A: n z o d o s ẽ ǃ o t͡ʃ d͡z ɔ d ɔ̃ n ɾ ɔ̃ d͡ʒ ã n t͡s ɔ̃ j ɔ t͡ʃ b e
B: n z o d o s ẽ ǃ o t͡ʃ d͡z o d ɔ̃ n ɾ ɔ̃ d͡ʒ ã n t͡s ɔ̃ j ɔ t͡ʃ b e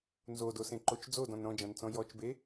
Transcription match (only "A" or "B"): B